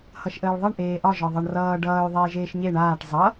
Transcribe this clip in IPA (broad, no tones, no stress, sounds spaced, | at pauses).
h ʌ ʃ ʔ əː ɭ ðˤ ʌ ɳ ʔ eː ʔ ɒ ʒ ɒ ðˤ ʌ ɳ r ʌː ɖ ʌː y̯ ðˤ eː ʒ eː ʃ ɲ e ɳ aː ʈ zˤ ʌ